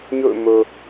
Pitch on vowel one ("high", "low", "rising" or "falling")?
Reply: falling